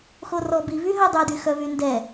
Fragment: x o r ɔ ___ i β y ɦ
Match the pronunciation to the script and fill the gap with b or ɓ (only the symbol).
b